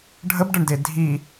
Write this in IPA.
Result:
ɖʱ ə b ɖ ə ɳ d e dʱ i

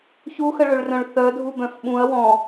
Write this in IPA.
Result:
ç u x ə ɭ ø ɭ r œ̃ ɭ θ œ dʱ u b œ̃ f ɓ ũ ɐ̯ w ɔ̃

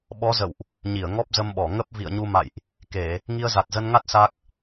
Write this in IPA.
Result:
ɓ ɔ˨˦ z ə̰˧˨ w ʔ | ɲ i˧˩ ə̯ ŋ ɔ˦˥ p̚ z ə˧ m ɓ ɔ˧˩ ŋ ə˦˥ p̚ v ḭ˧˨ ə̯ ɲ u˧ m a̰˧˨ j ʔ | k e˧˩˨ | ŋ i˧ ə̯ z a˨˩ t̚ z ə˧ n ŋ a˦˥ t̚ s a˦˥ k̚

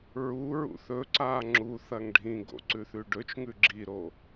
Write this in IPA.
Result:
ɹ u ɹ ṵ θ ɵ ǀ a ŋ͡ǁ u θ ɐ ŋ ɖʱ ĩ ɡ o̰ ǀ ʉ θ ʉ ɖ ɵ t͡ʃ ŋ ʉ ɡ͡ǁ i ɾ o

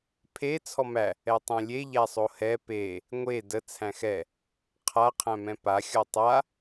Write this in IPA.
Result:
pʰ e t͡sʰ ɔ m æ | ɛ tˤ ɛ̃ lʲ e ʎ æ sˤ o h ɛ p e | ŋʷ e d ə t͡sʰ æ̃ x ɛ | qʰ a qʰ æ̃ m ɛ̃ p a xʲ ɔ tˤ a

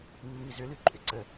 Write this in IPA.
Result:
mː i z ʏ l ʉ ǃʼ ʏ ǀ ə

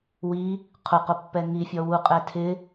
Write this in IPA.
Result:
w i | qʰ ʊ q ʊ pː ɛ ŋ i fʲ ɔ w u qʼ ɛ tʰ ɪ

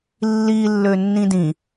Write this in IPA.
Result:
lː i lː ø nː ĩ d ĩ

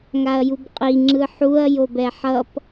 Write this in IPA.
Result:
ŋ a ɐ̯ j u b qʼ i ŋ͡ǁ ɯ ħ u ɐ̯ j o b ɛ ħ ʌ p

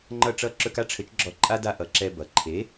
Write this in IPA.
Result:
ŋ͡ǃ ʌ˥˩ ʈ͡ʂ ʌ˥˩ ǁ ɵ˧ k a˥ ʈ͡ʂʰ ɘ˩˥ t͡ʃ ɡ͡ǁ ɔ˧ ǃʼ a˥ d a˥˩ ʔ ʌ˩˥ ǁ ɛ˧ b ʌ˩ ǃʰ e˩˥

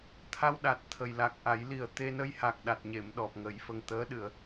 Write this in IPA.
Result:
t̪ʰ a˧ w ɗ a˨˩ t̚ t̪ʰ ə˨˩ j l a˨˩ k̚ ʔ a˨˩˦ j l i˨˩ ə̯ t̪ e˧ n ə˧ j h a˨˩ k̚ ɗ a˨˩ t̚ ɲ e˨˩˨ m ɗ ɔ˨˩ p̚ ŋ ə˨˩˦ j f ə˨˩ ŋ t̪ əː˧˥ ɗ ɨ˨˩˨ ə̯

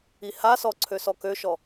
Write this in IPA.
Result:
i h a s ɔ ǀʰ ø s ɔ k ø ʃ ɔ

